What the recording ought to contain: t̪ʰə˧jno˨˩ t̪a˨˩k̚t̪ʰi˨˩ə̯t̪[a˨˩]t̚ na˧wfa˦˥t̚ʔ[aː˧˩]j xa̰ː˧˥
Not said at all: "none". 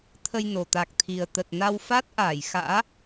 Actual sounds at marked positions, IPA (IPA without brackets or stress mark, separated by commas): ə˨˩, aː˧˩